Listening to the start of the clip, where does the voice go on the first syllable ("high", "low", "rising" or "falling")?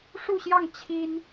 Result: falling